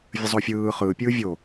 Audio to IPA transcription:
vʲəzˤofʲɯː χɯːpʲɯː vʲo

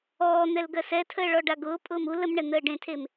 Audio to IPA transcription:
ɔːn̪ɛl ɡɜsɛtʰəː ɭɔɖaɡʊːpʼʊːm ul əmɳɛ n̪əːɖẽtʰem

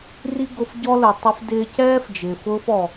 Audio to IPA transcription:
ri˥ɡʊ˧fɟɔ˥ lʊ˩tˤɪ˧fdɪː˧cɛː˥f d͡ʒɪː˩fʊː˥fɔ˩

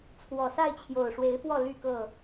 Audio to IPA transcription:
t͡sʰwɔ˨˩ sa˥˨ɪ̯t͡ɕʰjo˨˩ʊ̯ʂwe˨˦ɪ̯fwɔ˥˨ ly˥˨kɤ˥˨

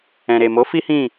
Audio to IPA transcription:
ɛ̃˨ɾe˨mo˨˦ fi˦hĩ˦˨

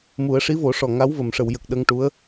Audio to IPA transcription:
mu˨˩˦ə̯ ʂi˧˥vo˨˩˦ʂɔ˨˩ ŋa˧˥wvə˨˩˨m ʂə˨˩˨wjə˨˩k̚ ɗə˧ŋʈu˧˥ə̯

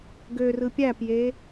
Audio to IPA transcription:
ɡørɯ pʲæpje

